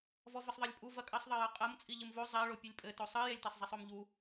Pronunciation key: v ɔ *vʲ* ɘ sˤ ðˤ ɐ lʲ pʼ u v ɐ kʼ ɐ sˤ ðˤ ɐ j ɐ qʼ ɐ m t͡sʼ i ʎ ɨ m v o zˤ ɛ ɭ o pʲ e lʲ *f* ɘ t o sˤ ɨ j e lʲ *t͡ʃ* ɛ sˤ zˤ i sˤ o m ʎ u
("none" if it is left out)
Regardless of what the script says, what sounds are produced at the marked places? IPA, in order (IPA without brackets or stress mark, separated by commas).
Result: v, pʼ, t